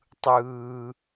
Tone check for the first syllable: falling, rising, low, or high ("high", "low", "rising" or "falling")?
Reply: high